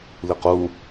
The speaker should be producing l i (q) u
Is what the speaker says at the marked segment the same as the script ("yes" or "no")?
yes